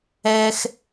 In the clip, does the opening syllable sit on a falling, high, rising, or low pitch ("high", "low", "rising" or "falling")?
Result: high